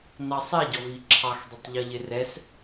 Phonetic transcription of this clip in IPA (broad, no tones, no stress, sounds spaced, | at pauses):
n ɑ sˤ ɛ ɟ ɔ v i ǁʰ ɑ x dˤ ə tˤ ʎ ʌ ʎ ɪ r ɛ s